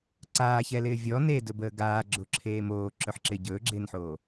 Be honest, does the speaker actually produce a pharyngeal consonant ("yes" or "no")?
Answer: yes